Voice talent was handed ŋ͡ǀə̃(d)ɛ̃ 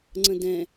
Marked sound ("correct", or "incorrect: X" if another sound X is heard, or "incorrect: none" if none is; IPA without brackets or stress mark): correct